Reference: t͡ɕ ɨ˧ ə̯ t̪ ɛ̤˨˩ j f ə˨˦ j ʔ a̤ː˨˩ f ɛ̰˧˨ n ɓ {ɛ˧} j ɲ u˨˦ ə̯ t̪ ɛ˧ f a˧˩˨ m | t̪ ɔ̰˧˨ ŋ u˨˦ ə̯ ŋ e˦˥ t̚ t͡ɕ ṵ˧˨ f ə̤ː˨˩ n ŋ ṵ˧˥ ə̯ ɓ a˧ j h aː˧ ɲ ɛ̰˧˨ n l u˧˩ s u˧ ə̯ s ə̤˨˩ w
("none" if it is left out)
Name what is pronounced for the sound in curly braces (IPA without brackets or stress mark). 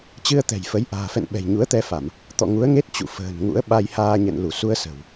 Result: ɛ̤˨˩